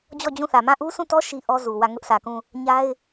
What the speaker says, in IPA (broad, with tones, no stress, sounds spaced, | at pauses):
d͡ʑ ɔ˦˨ d͡ʑ ũ˦˨ θ ä˨ m ã˦˨ ʔ u˦ sʰ ũ˦˨ t ɔ˦ ʃ i˦ ʔ ɔ˦ z u˨ w ä˦˨ ŋ ʊ˦ ʔ sʰ ä˨ k ũ˦˨ | ɲ a˦ ɪ̯